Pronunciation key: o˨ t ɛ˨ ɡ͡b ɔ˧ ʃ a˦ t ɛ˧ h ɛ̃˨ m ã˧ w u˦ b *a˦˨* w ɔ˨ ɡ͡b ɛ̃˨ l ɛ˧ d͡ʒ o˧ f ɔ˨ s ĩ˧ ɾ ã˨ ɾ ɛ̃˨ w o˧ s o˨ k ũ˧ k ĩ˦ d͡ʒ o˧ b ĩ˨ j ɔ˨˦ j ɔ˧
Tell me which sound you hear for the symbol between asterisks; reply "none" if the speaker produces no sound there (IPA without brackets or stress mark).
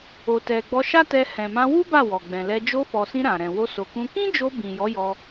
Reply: a˦˨